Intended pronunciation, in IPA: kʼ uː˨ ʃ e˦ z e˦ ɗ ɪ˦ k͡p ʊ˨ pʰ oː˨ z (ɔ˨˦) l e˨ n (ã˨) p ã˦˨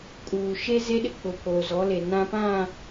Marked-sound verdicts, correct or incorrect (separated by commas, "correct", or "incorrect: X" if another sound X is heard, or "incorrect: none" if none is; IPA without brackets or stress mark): correct, incorrect: ã˦